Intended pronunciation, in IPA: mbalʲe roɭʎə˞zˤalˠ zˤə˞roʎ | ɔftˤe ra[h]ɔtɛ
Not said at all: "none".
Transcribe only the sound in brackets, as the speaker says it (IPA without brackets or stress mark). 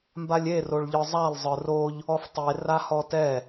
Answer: h